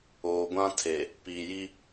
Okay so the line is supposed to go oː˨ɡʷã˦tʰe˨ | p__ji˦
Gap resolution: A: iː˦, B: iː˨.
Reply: B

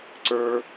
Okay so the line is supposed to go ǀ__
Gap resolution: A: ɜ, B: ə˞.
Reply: B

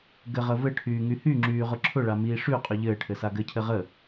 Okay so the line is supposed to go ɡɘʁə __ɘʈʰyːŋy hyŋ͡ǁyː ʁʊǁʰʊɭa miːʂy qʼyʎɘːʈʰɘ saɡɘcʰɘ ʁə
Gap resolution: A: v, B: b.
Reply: A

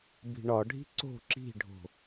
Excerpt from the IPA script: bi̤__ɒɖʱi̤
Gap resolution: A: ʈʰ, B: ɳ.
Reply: B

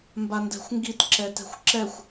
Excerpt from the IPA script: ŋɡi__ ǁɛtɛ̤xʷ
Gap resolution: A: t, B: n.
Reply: A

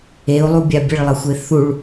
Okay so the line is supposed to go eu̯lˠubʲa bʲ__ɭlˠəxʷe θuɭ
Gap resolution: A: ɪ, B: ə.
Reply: B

